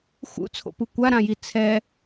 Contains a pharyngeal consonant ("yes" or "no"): no